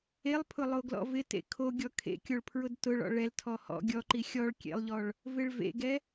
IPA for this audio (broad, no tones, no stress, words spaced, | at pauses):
elˠpʰʊ lˠoɡlɔ̰vɪtḛ kʰo ɡʲɔkʰḛkʲoɭ pʰɹʊdtʊɭɔ̰ ɭɛltʰɔ hɔ̰ ɡʲɔǃi xʲɔɭ kʲḛlˠʎɔɭ | vɪɭvḛɡɛ